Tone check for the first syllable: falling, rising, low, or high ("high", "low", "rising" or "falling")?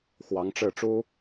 rising